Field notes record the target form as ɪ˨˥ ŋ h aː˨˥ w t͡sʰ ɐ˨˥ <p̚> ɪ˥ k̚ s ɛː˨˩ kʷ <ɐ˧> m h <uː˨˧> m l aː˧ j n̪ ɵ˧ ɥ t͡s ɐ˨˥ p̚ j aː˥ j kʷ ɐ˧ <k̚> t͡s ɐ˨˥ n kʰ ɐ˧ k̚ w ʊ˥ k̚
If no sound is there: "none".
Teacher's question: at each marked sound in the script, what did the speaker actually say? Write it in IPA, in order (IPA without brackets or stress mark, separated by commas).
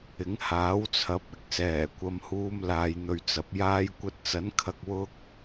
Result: p̚, ɐ˨, uː˧, t̚